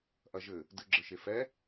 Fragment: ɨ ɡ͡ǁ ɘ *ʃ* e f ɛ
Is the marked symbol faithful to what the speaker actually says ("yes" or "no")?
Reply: yes